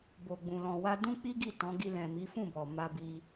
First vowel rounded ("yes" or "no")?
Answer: yes